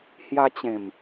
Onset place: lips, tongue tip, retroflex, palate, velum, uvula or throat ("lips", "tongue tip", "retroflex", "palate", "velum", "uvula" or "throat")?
throat